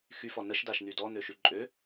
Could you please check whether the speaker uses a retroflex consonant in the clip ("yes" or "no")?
no